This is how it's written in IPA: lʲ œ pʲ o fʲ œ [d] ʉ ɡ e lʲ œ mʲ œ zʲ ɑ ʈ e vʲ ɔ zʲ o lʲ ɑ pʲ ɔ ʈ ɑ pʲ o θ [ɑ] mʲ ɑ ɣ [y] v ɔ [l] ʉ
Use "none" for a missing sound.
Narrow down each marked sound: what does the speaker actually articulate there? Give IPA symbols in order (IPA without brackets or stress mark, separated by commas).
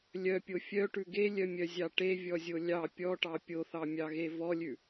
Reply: ʈ, ɑ, e, lʲ